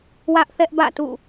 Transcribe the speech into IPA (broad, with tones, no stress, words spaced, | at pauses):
wä˦ʔθɛ˦ʔbä̰˦˨ tṵ˦˨